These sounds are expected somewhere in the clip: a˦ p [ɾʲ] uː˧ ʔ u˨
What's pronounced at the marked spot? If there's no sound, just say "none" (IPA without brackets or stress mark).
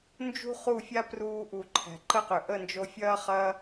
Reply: r